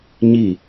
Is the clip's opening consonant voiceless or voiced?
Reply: voiced